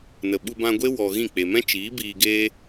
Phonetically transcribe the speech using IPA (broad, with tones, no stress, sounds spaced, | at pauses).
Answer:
n ə˨ ɓ u˧ b ã˧ ɡʷ e˦ w ɔ˧ ɣ ĩ˦˨ k͡p e˨ m ɛ̃˦ t͡ʃ iː˨˦ b iː˧ ɡ eː˦